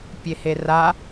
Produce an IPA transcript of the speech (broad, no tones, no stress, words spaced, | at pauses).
pʲehera